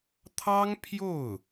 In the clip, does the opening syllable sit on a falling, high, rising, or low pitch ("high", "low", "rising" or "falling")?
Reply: high